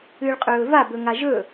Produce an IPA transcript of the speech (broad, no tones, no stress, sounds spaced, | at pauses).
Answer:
ɨː ɭ qʼ ɵː v a b ɵ ŋ a ʒ ɵ